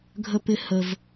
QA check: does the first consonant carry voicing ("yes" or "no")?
yes